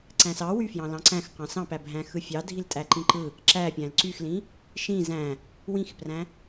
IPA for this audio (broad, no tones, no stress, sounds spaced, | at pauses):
ǀ æ̃ s ɑ w y f j ɑ̃ l ɑ̃ ǀ æ̃ x q ɑ̃ s ɑ̃ p æ bʱ æ̃ x ɯ fʲ ɑ dʱ i l tʼ æ ǃ ĩ ǃ ɯ | ǁ æ pʲ æ̃ l ǀ y x l ĩ | ʃ ĩ z æ̃ | w ĩ x p r æ̃